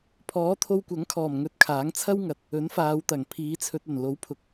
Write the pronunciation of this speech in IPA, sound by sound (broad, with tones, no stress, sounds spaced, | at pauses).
pʰ ɔː˨˥ t̪ʰ o˧ w kʷ ɐ˨˥ ŋ kʰ ɔː˨˩ m ŋ ɵ˧ t̚ kʰ aː˨˥ ŋ t͡sʰ ɐ˥ w ŋ ɐ˨ t̚ | ɵ˨˥ n f aː˨˧ w t̪ ɐ˨˩ ŋ pʰ iː˨˧ t͡sʰ ɵ˧ t̚ ɐ˨˩ n l o˨˥ w pʰ ʊ˨ k̚